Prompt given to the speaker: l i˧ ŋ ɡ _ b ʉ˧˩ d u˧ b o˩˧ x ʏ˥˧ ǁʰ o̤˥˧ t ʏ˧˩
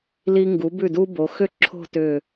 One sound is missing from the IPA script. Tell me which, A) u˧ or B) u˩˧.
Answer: B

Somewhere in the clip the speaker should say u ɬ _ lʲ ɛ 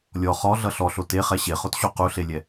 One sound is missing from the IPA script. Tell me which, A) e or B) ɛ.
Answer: A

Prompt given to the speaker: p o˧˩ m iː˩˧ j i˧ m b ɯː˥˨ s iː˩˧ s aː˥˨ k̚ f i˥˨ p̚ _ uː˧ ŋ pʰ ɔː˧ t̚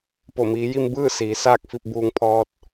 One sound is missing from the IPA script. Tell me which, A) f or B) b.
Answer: B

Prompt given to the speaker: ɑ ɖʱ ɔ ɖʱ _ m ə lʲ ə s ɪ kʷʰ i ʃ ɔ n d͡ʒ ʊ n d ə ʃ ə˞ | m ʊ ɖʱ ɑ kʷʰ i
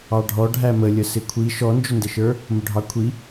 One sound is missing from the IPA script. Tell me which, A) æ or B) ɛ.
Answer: A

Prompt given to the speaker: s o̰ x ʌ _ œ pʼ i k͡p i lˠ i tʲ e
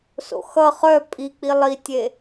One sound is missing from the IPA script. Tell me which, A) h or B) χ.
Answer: B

